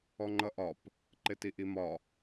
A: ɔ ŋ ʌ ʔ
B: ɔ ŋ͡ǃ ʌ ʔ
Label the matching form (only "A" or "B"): B